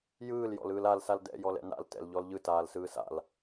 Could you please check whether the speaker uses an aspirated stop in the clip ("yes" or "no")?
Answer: no